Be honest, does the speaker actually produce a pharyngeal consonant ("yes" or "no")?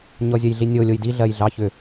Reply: no